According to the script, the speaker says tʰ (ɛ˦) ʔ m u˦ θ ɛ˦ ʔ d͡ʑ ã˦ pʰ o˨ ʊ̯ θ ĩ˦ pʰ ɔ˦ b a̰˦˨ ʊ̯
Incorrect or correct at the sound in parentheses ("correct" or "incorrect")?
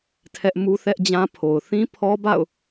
correct